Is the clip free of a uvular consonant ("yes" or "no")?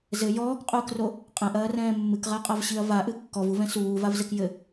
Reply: no